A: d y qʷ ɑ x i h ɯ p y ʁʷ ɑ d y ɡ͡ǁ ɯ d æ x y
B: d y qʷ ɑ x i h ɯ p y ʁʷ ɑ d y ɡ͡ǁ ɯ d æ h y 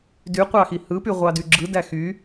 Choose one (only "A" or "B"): A